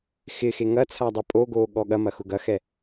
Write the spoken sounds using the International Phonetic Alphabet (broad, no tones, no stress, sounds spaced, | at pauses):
x ɪ x e ŋ ɐ t͡sʰ a dˤ œ pʼ o ɡ oː ɠ ɔ ɠ ɐ m ɐ x ʊ ɡ ɐ x ɛ